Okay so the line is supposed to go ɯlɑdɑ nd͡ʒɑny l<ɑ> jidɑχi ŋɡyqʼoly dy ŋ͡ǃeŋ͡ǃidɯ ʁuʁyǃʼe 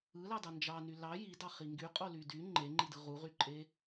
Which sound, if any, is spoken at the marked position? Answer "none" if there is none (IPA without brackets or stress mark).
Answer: ɑ